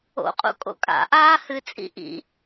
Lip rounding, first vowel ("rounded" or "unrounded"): rounded